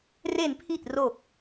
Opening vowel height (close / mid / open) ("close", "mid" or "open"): mid